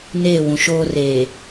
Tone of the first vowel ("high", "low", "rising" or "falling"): falling